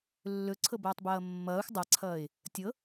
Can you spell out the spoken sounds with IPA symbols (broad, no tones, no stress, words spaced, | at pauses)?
lːɵǀʰɤbʌːtˤbʌː mːʌːxʷ dˤaǀʰʌːɪ̯ | tʲɤ